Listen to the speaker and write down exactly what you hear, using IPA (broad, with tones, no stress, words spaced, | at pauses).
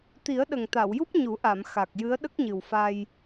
t̪i˨˩˦ə̯ɗə˨˩ŋt̪a˨˩˨wju˦˥p̚ ɲu˨˩˦ʔa˨˩˨m xa˨˩k̚jɨ˧˥ə̯ ɗə˦˥k̚ɲɨ˨˩wfa˧j